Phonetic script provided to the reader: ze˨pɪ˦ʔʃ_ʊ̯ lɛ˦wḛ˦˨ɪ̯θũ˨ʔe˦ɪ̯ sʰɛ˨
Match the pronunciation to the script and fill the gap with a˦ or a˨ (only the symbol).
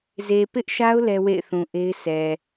a˦